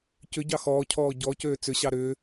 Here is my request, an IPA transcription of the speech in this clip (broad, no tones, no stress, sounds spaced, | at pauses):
c ʏ ɟ ɑ x ɔː cʰ ɔː ɟ ɔ c øː t͡s ʏ ɕ ɑ ɾ ʏː